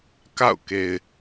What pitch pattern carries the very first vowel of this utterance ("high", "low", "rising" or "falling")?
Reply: falling